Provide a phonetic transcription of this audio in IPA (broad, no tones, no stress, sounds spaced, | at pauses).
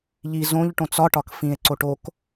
ʎ i z õ ʎ ʈ õ t͡s ɒ ʈ ɒ k f ĩ e̯ ǀ o ʈ o k